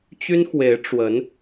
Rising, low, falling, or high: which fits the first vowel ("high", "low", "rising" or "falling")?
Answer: high